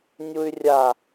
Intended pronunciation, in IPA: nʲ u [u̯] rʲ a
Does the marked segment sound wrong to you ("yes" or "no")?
yes